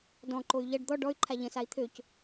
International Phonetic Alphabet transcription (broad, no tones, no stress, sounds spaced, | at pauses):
d ɔ̃ ǃ o y̯ ʎ ɐ ɖ d̪ ɔ ɖ ɔ y̯ ǃʰ a ʎ ə̃ s a i̯ t̪ʰ ø c